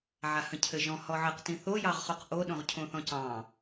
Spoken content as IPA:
ʕ a h ə̃ cʰ ɘ ʒ ɔ̃ h ɔ ʕ ɘ q t ĩ θ o j ɑ ʁ χ o q ʔ o ɗ õ ʁ cʰ õ θ ɔ̃ c ɑ̃

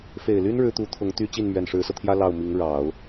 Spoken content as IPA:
f e˨˩ ɪ̯ l y˥ n ɻ ɻ̩˥ t̪ u˧˥ t̪ʰ ʊ˧˥ ŋ t̪ y˥ t͡ɕ i˥˩ n m ɥ ɛ˨˩ n ʂ ɻ̩˧˥ s ɤ˧ t̪ʰ j ä˥ l ɑ˥˩ ʊ̯ m i˧˥ ŋ ɻ ɑ˨˩˦ ʊ̯

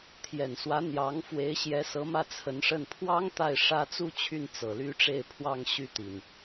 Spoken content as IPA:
t̪ʰ j ɛ˨˩ n s w ä˧˥ n̪ j ɑ˧˥ ŋ f w e˧˥ ɪ̯ ɕ j ɛ˧˥ s ɤ˧˥ m ä˥˩ t͡sʰ ə˧˥ n ʂ ə˥˩ n pʰ w ɑ˥ ŋ t̪ a˥˩ ɪ̯ ʂ ä˥ t͡s u˥ t͡ɕʰ y˥˩ n t͡s ɤ˨˩ l y˥ ʈ͡ʂ e˥˧ ɪ̯ pʰ w ɑ˥˧ ŋ ɕ y˥˩ t̪ i˩ n

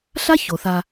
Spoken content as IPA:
ɬ a˥ ç o˩ θ a˨

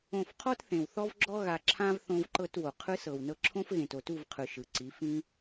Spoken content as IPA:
õ˦˨ f qʰ ɔ˦ t θ ẽ˨ w θ ɔ˦ v ɡ͡ǁ ɔ˦ ɣ a˧ ǁʰ ã˦ v θ õ˦ v ǃ ɤ˦ t w o˨ qʰ ɯ˦ s ɤ˨ w n ɤ˧ ǁʰ õ˦ f ɣ ẽ˨ t o˨ t u˦˨ v qʰ ɯ˨ ʃ ɯ˨ ǀ i˨˦ f ĩ˦

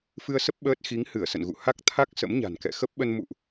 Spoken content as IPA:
f ɨ˧ ə̯ s ə˦˥ p̚ ɓ əː˦˥ t̚ x i˨˦ ŋ h ɨ˧˩ ə̯ s ə̰˧˨ n ɣ ṵ˧˨ h a˦˥ k̚ t̪ʰ a˦˥ k̚ s ə̰˧˥ m ɲ a̤˨˩ n k ɛ̰˧˨ x ə˦˥ p̚ ɓ ə˧ n m ṵ˧˨ ʔ

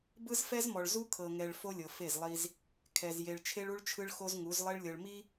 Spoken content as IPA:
b ɯ˦ z f ɛ˦ z m ɔ˨ ɭ z u˦ kʰ ɤ˨ ŋ ɛ˨ ɭ f o˦ lʲ ɤ˨ f e˦˨ z lˠ i˦ z | kʰ ɛ˨ z j e˨ ɭ t͡ʃʰ e˦ ɭ u˦ ɭ t͡ʃʰ ɯ˦ ɭ x o˦ z ŋ u˨˦ z lˠ e˦ ɭ lʲ ɤ˨ ɭ m i˦

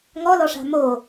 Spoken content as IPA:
ŋ ɔ l ɔ ʂ a̤ m o

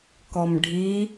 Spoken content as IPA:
k ɔ m ɖʱ i

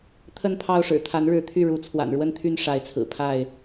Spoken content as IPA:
t̪ʰ ə˥˨ n pʰ ɑ˥˨ ʊ̯ ʂ ɻ̩˨˩ t̪ʰ a˨˦ n ɻ ɻ̩˨˦ t̪ʰ y˥˨ ɻ u˨˦ t͡sʰ w a̰˨˩ n ɻ w ə˥˨ n t̪ʰ y˥˨ n ʂ a˨˦ ɪ̯ t͡sʰ ɹ̩˨˩ pʰ a˥˨ ɪ̯

